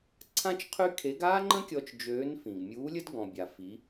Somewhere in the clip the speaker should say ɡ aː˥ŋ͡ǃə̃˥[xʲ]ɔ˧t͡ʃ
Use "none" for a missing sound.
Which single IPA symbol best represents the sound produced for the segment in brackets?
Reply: kʲ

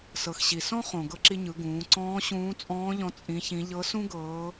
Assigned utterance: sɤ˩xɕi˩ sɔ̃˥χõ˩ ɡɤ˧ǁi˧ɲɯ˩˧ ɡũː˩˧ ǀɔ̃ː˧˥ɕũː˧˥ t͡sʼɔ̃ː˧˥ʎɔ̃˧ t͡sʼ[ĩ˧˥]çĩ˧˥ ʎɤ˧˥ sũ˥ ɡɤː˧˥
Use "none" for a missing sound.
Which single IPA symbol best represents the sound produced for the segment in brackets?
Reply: ĩ˧˥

